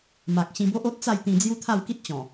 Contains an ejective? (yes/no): no